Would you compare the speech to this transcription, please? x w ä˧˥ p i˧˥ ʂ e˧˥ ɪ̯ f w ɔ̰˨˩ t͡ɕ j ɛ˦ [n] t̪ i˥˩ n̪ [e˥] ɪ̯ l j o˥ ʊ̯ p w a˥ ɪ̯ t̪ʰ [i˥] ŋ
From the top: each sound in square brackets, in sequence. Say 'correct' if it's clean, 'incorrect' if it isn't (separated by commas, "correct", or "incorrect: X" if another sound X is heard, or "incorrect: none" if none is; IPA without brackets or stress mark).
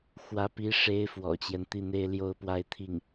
correct, correct, incorrect: i˥˩